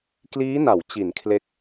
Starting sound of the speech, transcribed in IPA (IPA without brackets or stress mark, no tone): k